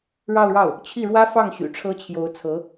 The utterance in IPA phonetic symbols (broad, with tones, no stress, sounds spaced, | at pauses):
ɻ ɑ˥˧ ʊ̯ ɻ ɑ˥˩ ʊ̯ | t͡ɕʰ i˥˩ ɻ w ä˥ f ɑ˥˩ ŋ ɕ y̰˨˩ ʈ͡ʂʰ ɤ˥ t͡ɕʰ j o˧˥ ʊ̯ t͡sʰ ɤ˧˥